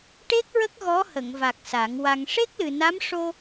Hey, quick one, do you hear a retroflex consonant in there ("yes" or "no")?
yes